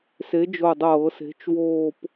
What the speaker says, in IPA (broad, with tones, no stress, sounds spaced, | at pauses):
s e˨˥ d͡ʒ o˧˩ dˤ ɤː˧˩˧ s e̤˨˥ t͡ʃ w oː˥˧ p